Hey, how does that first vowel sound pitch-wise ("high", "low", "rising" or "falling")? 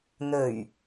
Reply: low